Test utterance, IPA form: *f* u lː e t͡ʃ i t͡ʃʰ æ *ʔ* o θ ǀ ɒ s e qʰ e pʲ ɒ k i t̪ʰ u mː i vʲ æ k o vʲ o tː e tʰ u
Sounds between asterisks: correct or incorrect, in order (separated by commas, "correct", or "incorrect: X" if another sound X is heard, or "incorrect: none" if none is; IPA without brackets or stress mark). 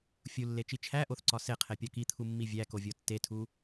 incorrect: fʲ, correct